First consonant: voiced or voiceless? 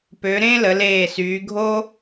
voiceless